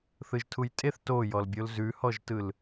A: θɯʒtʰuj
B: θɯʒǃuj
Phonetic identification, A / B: A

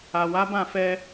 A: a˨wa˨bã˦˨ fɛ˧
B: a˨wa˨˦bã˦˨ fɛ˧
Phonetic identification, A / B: B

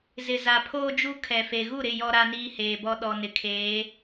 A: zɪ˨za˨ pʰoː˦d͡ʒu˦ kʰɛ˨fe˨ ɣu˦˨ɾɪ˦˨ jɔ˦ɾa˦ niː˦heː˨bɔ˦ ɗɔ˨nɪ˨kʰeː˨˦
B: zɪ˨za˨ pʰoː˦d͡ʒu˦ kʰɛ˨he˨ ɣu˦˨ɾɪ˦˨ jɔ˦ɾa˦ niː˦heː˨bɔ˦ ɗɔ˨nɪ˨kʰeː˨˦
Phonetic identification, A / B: A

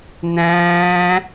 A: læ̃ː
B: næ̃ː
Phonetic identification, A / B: B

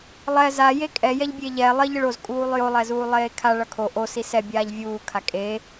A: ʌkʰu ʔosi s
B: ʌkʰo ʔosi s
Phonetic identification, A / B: B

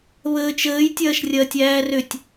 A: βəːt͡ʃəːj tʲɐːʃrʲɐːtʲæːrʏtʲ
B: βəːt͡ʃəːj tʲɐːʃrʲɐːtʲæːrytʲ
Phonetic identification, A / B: A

